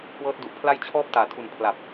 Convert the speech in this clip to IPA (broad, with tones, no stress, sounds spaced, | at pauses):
k w ɤː˦˥ t̚ d u˨˩ ʔ pʰ l a˥˩ j t͡ɕʰ ɔː˥˩ p̚ t aː˩˦ tʰ u˨˩ n pʰ l a˨˩ p̚